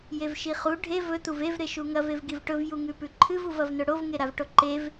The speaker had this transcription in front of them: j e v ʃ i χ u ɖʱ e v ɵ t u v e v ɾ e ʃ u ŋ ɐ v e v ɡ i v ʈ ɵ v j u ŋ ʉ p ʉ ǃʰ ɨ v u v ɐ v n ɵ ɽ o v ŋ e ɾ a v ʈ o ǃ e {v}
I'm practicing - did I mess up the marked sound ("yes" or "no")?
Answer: no